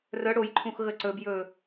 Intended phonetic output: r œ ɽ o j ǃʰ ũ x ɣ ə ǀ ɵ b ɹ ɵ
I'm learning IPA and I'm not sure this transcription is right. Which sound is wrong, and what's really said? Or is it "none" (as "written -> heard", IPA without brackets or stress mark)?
ɹ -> j